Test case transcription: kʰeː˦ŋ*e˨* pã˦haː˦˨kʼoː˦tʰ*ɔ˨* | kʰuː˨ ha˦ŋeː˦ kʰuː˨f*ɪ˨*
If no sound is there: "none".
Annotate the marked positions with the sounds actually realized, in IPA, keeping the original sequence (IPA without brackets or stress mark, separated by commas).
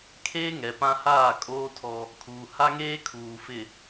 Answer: ɛ˨, ɔ˦, ɪ˨